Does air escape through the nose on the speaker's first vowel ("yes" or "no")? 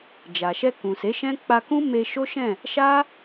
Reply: no